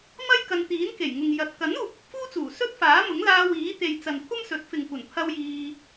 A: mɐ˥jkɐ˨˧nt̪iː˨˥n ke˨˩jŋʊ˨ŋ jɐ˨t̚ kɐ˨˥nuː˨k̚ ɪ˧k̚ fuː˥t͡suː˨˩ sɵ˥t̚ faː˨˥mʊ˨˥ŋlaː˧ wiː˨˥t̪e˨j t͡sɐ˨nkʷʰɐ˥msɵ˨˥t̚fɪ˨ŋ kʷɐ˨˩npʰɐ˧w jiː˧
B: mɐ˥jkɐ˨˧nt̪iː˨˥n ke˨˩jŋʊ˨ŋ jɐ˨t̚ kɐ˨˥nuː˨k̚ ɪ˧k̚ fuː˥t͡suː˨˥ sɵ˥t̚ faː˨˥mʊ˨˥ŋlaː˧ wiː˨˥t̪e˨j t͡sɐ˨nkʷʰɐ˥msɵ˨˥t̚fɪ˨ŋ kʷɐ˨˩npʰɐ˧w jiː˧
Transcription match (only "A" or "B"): A